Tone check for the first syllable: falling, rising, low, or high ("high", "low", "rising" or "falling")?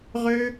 high